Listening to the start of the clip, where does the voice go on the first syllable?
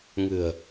low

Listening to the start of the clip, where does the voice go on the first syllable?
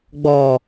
low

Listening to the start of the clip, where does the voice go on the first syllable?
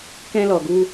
high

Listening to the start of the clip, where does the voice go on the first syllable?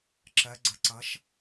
rising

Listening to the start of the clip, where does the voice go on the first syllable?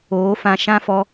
rising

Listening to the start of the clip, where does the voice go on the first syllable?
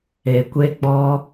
low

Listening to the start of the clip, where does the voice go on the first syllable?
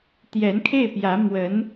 rising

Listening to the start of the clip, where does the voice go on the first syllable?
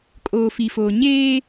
low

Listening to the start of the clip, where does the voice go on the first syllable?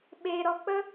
low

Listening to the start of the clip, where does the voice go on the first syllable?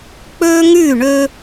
high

